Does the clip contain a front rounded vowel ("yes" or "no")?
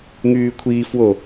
yes